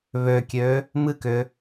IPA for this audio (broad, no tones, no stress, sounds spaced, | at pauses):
β ø kʲ ø | m ɨ k ʏ